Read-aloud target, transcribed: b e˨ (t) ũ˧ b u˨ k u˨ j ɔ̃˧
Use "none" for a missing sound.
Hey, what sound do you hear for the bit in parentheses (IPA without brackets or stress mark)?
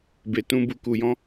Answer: t